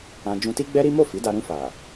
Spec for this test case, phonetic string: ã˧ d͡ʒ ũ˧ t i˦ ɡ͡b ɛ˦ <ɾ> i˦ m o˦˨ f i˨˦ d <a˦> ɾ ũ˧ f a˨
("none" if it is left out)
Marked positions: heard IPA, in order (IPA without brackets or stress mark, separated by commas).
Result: ɾ, a˧